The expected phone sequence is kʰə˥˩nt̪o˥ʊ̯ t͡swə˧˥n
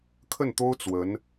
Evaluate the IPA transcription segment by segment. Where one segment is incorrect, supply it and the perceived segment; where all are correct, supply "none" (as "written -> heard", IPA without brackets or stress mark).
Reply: none